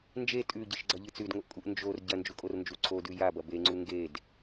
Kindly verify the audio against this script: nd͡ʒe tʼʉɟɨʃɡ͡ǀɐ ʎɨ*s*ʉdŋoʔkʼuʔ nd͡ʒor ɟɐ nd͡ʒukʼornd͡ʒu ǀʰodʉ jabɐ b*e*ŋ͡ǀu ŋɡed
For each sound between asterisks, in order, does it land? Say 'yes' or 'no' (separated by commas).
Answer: no, yes